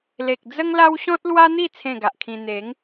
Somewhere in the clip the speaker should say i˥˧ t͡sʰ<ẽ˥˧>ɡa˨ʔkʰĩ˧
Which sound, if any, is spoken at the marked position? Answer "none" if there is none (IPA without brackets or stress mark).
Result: ẽ˥˧